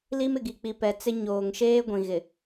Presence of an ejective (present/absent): absent